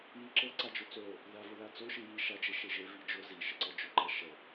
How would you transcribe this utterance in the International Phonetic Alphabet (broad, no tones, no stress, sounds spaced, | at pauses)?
j i ǁ ɤ ǀ a d͡ʒ ʊ t͡s o | ð a v ʊ ð a t͡s o ʃ i j i ʃ a d͡ʒ e ʃ e ʒ e v i d͡ʒ ʊ z i ʃ ə ǀ ɤ d͡ʒ ʊ ǃ a ʃ ə